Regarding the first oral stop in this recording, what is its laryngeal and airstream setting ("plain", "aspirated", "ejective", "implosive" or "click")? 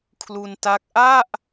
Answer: aspirated